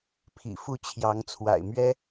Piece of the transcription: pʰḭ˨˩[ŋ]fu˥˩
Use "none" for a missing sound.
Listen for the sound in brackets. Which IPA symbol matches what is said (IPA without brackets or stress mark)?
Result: none